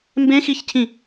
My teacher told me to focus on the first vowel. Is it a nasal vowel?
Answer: yes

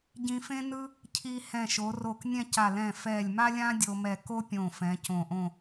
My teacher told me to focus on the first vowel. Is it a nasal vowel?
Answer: yes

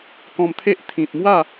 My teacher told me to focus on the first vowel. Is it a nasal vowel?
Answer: yes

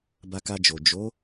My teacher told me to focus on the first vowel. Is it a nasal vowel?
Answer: no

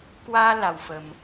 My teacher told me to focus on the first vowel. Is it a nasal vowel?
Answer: no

